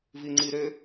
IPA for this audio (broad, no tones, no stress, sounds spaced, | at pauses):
v i ŋ͡ǀ i ɾ ø